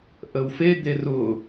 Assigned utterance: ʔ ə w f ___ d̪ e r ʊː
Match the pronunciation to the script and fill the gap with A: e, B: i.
A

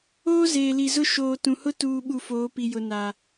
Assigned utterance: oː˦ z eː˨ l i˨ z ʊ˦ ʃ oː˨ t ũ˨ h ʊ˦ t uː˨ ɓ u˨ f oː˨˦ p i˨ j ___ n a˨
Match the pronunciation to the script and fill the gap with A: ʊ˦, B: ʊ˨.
B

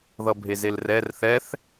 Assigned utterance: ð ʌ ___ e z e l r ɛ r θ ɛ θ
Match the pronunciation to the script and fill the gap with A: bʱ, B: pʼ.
A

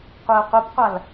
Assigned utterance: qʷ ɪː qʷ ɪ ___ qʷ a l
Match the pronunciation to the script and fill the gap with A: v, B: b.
B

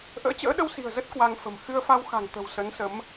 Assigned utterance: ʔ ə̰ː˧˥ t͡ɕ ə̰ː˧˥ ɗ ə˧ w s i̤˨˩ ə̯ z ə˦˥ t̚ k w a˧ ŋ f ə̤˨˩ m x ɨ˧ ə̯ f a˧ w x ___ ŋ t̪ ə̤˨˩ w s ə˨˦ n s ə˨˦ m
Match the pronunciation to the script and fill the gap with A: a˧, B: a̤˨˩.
B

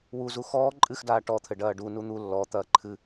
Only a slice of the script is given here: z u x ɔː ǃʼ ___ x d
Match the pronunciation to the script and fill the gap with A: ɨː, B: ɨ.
B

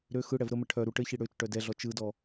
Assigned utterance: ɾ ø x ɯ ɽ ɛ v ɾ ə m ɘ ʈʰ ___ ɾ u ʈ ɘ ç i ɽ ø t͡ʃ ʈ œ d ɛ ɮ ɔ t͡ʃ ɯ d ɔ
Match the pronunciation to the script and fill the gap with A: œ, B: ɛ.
A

